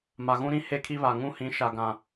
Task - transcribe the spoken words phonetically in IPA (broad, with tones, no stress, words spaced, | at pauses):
ma˨ɣũ˦ɾĩ˦ he˦kʰi˦βa˨ ŋũ˦hĩ˨˦ ʃa˨ɡã˨